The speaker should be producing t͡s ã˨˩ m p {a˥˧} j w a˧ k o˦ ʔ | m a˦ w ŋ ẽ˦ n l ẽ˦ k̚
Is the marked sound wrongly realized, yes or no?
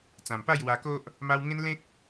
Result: no